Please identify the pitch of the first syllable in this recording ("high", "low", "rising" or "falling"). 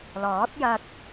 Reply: rising